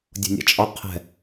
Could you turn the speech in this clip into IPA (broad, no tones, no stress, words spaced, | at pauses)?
dʲo̤nʲa̰t͡ʃʼɒ qʰɛ̤